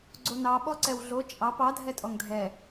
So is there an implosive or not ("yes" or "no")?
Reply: yes